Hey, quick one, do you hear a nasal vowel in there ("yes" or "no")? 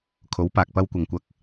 no